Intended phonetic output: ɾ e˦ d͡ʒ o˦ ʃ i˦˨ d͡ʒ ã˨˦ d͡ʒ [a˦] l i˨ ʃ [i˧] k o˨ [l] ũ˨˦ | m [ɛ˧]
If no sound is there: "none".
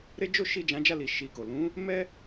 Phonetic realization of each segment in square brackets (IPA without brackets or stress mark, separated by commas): a˦˨, i˧, l, ɛ˦